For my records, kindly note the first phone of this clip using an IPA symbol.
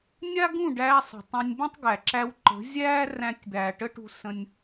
nʲ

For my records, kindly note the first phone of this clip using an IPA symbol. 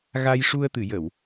ɣ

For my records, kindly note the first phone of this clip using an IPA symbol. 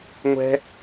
ŋʷ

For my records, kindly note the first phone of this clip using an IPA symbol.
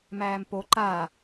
m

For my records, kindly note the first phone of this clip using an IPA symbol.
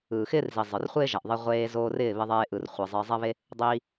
ɯː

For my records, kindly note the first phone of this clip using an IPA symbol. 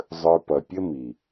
zˤ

